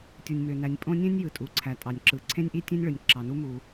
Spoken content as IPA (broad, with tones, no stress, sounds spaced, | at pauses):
tʲ u˩ nʲ m ø˩ n æ˩ nʲ pʼ õ˥ nʲ ẽ˥ nʲ j ɯ˩ tʼ u˩ ǀʰ æ˩ tʼ ɑ˩ nʲ ǁ ɯ˩ ǀʰ ẽ˥ nʲ ʔ i˥ tʲ ẽ˥ nʲ ɭ ɯ˩ nʲ ǁ ɑ˩ n u˥ m u˩